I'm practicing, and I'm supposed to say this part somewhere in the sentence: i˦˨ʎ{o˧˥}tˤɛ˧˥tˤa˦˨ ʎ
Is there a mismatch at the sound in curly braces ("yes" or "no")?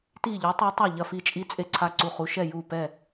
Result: no